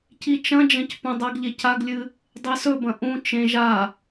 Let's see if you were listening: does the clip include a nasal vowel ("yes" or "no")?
yes